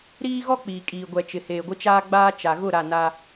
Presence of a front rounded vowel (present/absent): absent